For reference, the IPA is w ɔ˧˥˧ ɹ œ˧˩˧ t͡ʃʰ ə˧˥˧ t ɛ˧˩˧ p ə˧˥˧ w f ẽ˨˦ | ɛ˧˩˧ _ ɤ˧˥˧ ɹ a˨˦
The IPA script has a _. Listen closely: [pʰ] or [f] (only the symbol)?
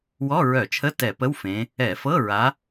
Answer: f